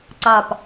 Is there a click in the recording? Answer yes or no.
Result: yes